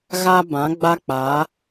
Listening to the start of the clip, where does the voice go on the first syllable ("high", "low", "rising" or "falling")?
high